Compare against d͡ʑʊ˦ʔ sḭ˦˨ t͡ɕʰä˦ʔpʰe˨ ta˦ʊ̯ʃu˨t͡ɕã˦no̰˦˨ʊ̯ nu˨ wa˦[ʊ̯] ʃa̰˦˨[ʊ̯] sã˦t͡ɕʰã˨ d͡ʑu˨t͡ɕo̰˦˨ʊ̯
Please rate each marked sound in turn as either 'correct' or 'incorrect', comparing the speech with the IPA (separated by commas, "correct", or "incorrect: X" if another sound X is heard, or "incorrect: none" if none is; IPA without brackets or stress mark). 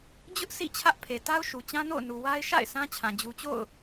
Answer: incorrect: ɪ̯, incorrect: ɪ̯